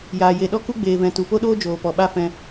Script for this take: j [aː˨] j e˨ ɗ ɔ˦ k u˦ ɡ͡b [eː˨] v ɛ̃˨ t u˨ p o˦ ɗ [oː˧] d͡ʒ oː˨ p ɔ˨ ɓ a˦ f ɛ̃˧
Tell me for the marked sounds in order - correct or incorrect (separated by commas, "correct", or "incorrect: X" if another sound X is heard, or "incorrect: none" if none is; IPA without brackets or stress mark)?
correct, correct, incorrect: oː˦